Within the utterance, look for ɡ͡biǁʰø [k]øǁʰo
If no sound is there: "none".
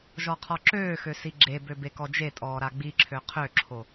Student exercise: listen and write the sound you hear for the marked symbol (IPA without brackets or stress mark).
qʰ